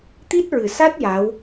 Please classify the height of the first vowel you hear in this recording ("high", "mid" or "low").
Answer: high